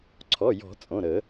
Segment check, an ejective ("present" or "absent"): present